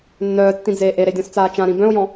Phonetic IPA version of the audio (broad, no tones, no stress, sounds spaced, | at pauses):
nː œː tː ĩ d͡z eː ʔ e ɾ e dʲ ɔ̃ s t͡s aː t͡ʃ ã ɾ ĩ b œ̃ ʊ̯ j ɔ̃